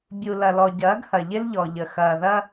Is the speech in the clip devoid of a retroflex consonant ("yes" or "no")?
yes